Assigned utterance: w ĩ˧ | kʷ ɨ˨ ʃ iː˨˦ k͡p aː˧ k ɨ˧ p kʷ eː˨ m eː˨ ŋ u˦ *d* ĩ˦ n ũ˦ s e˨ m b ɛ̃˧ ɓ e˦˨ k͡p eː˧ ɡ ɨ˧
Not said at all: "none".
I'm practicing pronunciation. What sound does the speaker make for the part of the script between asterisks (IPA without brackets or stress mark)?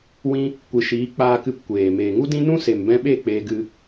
d